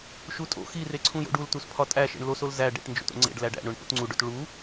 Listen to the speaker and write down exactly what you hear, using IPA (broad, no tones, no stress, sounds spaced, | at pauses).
ʃ u tʼ o̰ x i r e ǀʰ ũ j o̰ ɖ u l t u s pʰ ɒ tʼ æ ʃ ḛ ɳ l o s o l z æ ɖ ḛ ʈ n d͡ʒ o̰ t o̰ ŋ͡ǀ ḛ ɖ l æ ɖ æ̰ ɳ o ɳ p o̰ t ŋ͡ǀ u ɖ o t ɭ u